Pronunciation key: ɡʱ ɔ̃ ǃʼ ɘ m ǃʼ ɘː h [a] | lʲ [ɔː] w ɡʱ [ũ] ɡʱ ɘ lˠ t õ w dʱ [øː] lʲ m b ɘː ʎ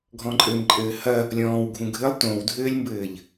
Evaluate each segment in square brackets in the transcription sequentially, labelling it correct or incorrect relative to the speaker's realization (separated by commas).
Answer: incorrect, incorrect, correct, incorrect